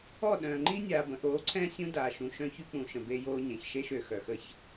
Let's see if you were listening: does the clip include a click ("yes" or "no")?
yes